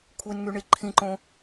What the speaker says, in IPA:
kʷʰ e n ŋ y ɳ i ǃʰ ĩ ǃ õ

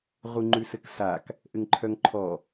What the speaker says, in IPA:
ʁ u ŋ͡ǃ ʉ s ɘ k s a k | ʔ ɘ ŋ ǃʰ œ ŋ ǃʰ ɔ

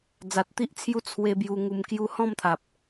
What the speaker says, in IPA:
d͡z a˨ t̚ t̪ i˦ ʔ t͡sʰ j u˦ t͡sʰ w e˧ b j u˧ ŋ u˧ m k j u˧ h ɔ̃˥˧ m t̪ʰ a˨ p̚

